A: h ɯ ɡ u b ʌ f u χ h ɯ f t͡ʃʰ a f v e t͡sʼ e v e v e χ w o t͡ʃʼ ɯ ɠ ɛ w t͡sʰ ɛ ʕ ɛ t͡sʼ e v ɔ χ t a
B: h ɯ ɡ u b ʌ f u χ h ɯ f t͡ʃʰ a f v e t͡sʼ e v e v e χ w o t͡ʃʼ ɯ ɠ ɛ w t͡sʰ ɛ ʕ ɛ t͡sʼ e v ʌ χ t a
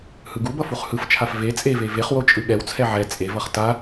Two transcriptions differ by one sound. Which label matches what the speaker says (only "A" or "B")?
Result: B